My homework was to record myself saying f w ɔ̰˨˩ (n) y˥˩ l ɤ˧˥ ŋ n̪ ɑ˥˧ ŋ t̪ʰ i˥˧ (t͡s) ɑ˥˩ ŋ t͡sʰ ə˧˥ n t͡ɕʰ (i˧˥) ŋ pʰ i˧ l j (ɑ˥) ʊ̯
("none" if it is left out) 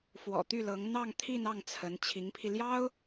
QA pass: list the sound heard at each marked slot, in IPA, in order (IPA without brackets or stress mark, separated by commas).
t̪, n, i˧˥, ɑ˥